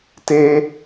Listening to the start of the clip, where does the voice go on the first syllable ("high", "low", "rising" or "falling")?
high